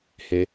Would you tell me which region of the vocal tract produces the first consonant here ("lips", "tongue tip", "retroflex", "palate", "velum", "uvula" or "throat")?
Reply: throat